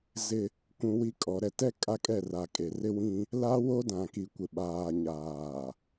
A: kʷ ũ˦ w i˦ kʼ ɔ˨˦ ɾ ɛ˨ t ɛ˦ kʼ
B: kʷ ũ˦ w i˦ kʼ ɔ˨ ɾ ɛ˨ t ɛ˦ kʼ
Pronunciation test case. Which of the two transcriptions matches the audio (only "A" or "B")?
A